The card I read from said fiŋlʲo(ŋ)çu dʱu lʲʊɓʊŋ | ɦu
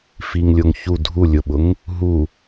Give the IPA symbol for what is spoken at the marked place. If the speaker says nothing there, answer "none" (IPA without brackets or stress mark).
ŋ